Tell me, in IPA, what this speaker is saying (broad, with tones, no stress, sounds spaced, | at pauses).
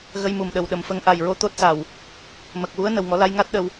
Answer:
ɣ ə˧ j m u˨˩ m ɗ ə˨˩ w ɗ ə˨˩ m f ə˧ ŋ ʔ a˨˩ j ɹ o˧ t̪ o˦˥ t̚ s a˨˩ w | m ə˨˩ k̚ w u˧˥ ə̯ n ə˨˩ w ŋ ɔ˨˩˦ l a˧ j ŋ a˦˥ t̚ ɗ ə˧ w